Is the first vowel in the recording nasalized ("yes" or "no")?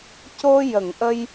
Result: no